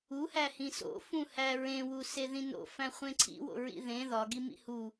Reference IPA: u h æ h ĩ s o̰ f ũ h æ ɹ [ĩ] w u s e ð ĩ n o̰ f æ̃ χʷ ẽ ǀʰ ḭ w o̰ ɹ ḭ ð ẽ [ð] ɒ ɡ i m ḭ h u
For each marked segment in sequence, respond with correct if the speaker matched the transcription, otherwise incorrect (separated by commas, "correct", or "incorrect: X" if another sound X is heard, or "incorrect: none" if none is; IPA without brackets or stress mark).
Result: incorrect: ẽ, correct